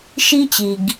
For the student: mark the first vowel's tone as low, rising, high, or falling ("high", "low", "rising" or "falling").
high